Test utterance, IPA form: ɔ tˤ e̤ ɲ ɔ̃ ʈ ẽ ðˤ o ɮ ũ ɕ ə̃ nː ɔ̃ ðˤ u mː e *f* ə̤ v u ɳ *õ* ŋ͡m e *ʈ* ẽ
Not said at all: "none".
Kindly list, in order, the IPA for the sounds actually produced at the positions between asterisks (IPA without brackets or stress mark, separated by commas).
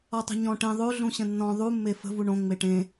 f, õ, ʈ